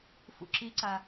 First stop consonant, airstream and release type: click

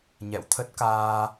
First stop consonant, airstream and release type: aspirated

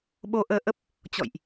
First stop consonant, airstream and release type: implosive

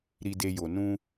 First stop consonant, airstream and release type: plain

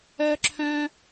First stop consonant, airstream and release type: click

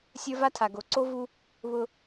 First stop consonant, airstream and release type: aspirated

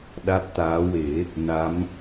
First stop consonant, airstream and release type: implosive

